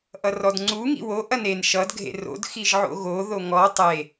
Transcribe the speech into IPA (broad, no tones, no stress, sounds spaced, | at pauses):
ʔ ʌ r ɔ d ŋ͡ǀ u ŋ ḭ w o ʔ ɐ n e n ʃ ʌ d ɡʱ ḛ r o̰ d x i ʒ ʕ o̰ ɣ o ð o ŋ ɔ tˤ e